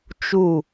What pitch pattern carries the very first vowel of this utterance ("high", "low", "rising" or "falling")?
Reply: falling